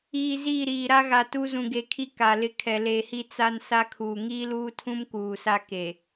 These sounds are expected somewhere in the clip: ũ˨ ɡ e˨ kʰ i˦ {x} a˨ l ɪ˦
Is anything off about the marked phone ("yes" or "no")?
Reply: yes